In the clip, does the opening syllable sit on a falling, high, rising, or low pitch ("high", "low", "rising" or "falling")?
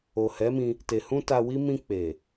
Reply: low